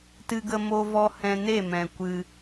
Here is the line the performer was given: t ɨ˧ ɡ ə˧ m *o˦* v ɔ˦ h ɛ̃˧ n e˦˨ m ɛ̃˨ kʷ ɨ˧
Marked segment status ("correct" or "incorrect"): correct